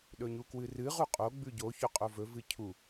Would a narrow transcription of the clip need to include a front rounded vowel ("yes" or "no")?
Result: no